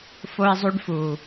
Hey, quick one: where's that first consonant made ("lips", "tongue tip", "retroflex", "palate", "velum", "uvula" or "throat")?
lips